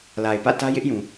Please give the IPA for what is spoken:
la˨ɪ̯pä̰˦˨tä˦ jɪ˦ʔjũ˨

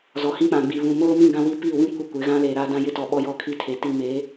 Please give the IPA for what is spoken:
zɔ˨hĩ˦ k͡pã˨ɡ͡bi˨ βũ˨moː˦mĩ˦˨ ɡã˦wi˦ pi˦˨wĩ˦ kʷi˦kʷɪ˨˦ ɣã˦leː˨ɾaː˦ dã˦jɪ˦tɔ˨ ɓɔ˦jɔ˦˨kʰi˦tʰe˨ ti˦ meː˨˦

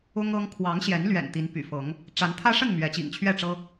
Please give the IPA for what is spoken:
ʊ˦ŋɤ˦ŋ kʰwɑ˨˦ŋɕjɛ˨˦nlɥɛ̰˨˩n t̪i˨˦npy̰˨˩fɤ˨˦ŋ | ʈ͡ʂa˨˦nt̪ʰä˦ʂə˥˨n mɥɛ˨˦t͡ɕḭ˨˩ŋt͡ɕʰɥɛ˥˨ʈ͡ʂɤ˦

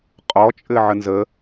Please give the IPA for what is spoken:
qʼɔt͡ʃʼɘ ʕənzə

